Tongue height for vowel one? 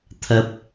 low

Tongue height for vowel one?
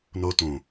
mid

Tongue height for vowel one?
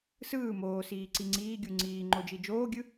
high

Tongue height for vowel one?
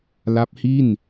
low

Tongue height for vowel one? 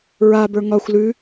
low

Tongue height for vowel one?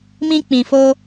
high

